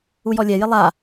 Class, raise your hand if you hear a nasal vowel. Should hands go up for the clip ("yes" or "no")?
no